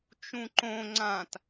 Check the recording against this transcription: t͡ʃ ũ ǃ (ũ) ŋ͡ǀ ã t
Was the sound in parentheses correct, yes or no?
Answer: no